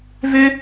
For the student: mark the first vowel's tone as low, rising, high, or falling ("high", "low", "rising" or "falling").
high